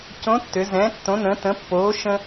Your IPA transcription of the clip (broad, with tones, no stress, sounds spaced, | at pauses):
c õ˧˥ tː ʏ˩˧ z ɛ̃ː˩˧ tː õ˩˧ n ə̃˩˧ t ə̃˩˧ pː oː˩˧ ʃ ə̃˧